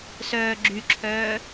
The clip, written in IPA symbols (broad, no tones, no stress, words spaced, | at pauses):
sœːɡ͡ǁyǁʰœː